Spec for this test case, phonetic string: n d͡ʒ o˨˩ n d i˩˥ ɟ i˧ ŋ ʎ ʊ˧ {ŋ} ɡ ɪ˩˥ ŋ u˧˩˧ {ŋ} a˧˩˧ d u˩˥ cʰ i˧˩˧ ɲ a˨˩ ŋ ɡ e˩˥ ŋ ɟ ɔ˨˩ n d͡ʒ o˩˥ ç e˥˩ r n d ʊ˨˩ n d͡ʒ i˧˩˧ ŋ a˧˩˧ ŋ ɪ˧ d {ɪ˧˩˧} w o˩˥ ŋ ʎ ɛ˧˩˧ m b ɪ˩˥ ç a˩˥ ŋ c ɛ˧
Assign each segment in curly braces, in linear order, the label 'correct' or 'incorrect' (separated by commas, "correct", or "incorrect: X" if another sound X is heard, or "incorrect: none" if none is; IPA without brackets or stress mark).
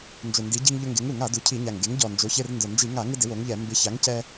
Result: correct, correct, incorrect: ɪ˩˥